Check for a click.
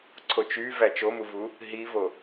present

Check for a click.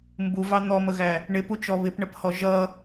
absent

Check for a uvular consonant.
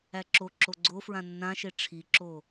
absent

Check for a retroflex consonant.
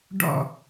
present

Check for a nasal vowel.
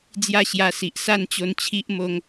absent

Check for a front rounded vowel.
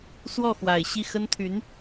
present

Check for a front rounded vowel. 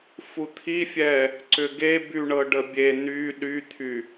present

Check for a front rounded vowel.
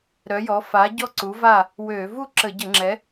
present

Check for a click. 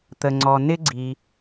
present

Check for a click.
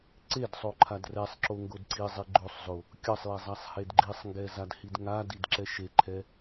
present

